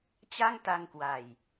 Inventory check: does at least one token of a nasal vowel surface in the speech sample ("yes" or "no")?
no